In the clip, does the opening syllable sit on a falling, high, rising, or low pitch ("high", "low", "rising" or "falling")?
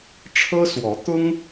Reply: high